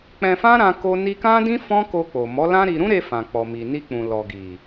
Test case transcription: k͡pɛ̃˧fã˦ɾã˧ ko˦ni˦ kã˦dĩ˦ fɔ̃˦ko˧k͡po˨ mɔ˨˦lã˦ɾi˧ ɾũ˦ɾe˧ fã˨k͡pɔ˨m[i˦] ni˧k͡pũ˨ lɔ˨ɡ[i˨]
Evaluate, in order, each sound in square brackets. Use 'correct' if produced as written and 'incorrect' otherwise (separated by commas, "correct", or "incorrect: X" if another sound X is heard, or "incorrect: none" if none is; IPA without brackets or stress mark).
incorrect: i˨, correct